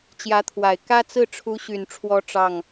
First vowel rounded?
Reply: no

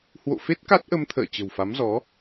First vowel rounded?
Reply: yes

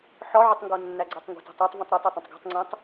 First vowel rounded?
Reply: yes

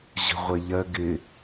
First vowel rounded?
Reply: no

